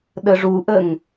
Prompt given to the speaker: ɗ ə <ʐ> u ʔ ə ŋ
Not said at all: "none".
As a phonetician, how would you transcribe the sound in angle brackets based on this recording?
ʐ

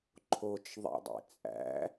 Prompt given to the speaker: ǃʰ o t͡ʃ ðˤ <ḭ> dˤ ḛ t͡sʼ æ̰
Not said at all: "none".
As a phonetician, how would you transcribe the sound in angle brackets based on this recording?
ḛ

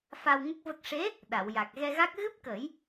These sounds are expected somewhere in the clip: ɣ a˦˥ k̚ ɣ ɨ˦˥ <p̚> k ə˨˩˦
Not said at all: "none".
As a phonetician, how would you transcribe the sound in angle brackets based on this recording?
p̚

